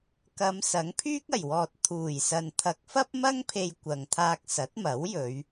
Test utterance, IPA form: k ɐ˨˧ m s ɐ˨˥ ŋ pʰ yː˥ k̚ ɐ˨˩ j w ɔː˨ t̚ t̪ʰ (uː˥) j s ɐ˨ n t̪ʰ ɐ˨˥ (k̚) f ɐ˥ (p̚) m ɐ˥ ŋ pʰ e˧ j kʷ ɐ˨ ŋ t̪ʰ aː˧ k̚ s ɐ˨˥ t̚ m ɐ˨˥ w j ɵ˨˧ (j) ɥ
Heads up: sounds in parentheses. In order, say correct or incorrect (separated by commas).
incorrect, correct, correct, incorrect